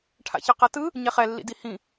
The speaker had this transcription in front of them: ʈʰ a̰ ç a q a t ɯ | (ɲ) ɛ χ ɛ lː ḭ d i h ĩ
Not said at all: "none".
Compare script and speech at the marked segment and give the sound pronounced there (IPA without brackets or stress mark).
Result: ɲ